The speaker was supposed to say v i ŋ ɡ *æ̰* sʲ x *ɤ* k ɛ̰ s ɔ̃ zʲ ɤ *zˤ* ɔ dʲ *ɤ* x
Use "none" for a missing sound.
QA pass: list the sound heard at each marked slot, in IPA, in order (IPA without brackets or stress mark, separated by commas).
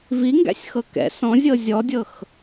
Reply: æ̰, ɤ, zʲ, ɤ